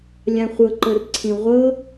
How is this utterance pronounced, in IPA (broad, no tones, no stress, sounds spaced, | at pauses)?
lʲ ã χʷ ɤ ǃ ɤ r ǀʰ ĩ ʁʷ ɤ